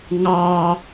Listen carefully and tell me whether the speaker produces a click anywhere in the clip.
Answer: no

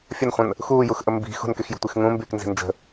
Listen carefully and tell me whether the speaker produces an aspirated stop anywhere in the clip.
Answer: no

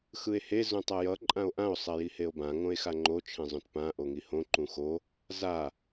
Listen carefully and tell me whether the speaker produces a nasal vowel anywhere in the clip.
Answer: yes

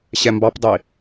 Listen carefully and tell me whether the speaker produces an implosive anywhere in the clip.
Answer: no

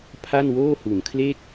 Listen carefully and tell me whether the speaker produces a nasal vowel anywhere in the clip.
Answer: no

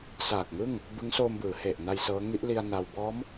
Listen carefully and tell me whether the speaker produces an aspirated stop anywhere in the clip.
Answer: no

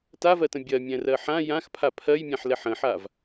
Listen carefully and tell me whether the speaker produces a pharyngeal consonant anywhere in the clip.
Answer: yes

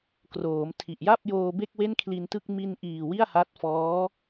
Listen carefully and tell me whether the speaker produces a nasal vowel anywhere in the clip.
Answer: no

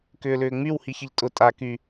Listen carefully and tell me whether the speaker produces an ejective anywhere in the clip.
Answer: yes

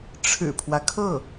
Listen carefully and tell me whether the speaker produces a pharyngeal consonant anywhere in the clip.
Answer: no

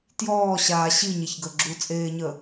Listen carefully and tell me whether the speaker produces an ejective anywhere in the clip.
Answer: yes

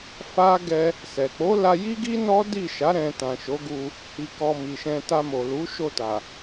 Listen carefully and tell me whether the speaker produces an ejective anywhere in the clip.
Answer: no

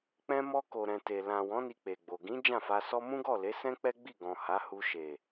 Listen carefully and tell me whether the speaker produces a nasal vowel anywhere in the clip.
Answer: yes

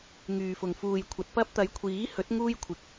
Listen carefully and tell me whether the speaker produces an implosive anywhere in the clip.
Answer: no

